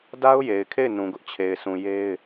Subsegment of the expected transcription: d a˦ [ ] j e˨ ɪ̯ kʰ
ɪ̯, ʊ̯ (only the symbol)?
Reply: ʊ̯